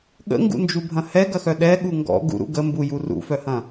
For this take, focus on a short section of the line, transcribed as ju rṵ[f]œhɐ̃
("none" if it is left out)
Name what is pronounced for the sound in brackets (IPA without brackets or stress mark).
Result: f